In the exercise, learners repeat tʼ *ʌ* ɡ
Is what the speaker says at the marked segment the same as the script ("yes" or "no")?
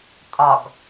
no